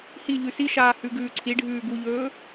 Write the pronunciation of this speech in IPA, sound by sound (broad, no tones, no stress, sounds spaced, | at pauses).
h i ʎ ʉ s i ʃ aː h ʉ ɡ ʉː ǀʰ i ɖʱ ʉː ɡ u ʎ ɵː